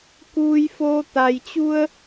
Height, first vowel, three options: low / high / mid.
high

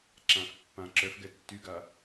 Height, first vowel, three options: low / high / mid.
low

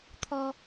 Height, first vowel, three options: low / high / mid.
mid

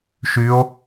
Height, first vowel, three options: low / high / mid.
high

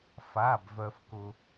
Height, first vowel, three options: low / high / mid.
low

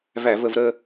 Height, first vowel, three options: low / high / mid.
low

